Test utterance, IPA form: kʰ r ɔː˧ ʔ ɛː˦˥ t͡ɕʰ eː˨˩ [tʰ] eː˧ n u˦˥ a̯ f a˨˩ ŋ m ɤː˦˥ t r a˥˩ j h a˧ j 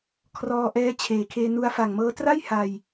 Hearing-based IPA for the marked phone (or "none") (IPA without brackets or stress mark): kʰ